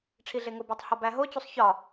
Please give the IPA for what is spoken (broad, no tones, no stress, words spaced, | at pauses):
ʈ͡ʂʰiɮeŋobætˤ hɒbæɦot͡ɕusˤ çɒ